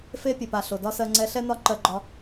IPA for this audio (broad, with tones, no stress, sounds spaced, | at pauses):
f e˦ pʲ e˨ p a˨ ɬ o˨ d ɒ˦ s ɜ˧ ŋ͡ǀ ɛ˧ ɬ ɛ˦ n ɒ˦ ǃ ɜ˧ ɡ͡ǃ ɒ˧